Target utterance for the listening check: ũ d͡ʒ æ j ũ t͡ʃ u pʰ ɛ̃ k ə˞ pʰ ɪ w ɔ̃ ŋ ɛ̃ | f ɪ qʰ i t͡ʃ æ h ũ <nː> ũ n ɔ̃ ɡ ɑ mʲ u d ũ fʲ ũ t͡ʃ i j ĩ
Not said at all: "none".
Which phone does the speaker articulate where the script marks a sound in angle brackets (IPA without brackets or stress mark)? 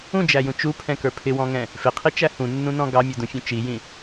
nː